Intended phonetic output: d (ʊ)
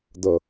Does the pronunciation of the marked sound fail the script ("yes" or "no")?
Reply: yes